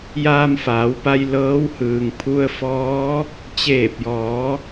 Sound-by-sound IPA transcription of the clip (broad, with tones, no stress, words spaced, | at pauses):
jaː˧mfaː˩˧wpa˧j lɤː˧˥whɯː˩ŋ pʰu˧ə̯fɔː˧˥ | t͡ɕeː˧˩p̚jɔː˩˧